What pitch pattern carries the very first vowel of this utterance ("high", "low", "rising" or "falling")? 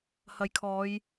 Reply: low